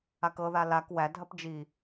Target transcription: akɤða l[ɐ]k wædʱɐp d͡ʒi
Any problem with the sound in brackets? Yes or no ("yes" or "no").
yes